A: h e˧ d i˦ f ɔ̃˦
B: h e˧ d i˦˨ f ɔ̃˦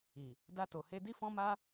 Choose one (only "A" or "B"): A